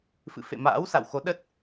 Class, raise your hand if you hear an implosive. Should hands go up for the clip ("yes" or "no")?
yes